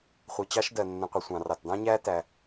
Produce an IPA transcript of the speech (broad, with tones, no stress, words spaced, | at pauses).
χʷi˧t͡ɕɑ˥ʃdɜ˧ nːə̃˧qʷʌ˧ sʷɑ̃˧rɑ˧tdɑ̃˥ɲæː˥ tæ˧